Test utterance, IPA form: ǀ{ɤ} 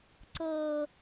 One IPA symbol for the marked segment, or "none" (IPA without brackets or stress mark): ɤ